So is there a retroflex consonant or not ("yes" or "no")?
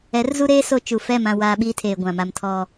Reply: no